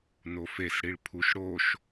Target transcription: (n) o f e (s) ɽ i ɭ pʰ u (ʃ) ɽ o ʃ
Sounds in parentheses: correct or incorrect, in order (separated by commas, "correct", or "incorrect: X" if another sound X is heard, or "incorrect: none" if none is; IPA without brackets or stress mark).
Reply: correct, correct, correct